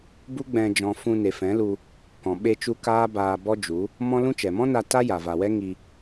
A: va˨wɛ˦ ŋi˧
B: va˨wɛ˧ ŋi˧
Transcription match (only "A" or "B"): A